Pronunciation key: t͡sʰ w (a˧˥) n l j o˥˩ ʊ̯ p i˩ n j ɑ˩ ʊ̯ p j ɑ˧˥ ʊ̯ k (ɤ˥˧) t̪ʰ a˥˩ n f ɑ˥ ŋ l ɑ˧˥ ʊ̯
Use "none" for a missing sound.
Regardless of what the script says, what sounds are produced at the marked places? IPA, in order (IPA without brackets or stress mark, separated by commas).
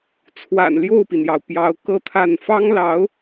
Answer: a̰˨˩, ɤ˥˧